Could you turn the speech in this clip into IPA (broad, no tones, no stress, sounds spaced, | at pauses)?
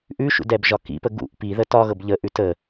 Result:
ʔ ʉ ʃ ṵ d ɛ b ʒ ɒ k ḭ p ə ɡ ṵ ʔ p i ð ə t ɒ ɣ ɤ b ʎ ə ʔ ʉ t ə